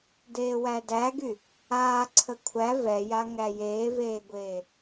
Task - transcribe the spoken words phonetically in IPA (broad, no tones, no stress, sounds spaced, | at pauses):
d eː w æ d æ ɡ y | aː ǀʰ ə kʷʰ æ v ɛ j a ŋ æ j eː v eː ɡʷ eː